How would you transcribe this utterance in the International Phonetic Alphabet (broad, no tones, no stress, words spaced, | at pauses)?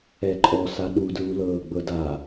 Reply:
ɛǃʼɔsa ɗudɹulɤː ɡ͡bɤda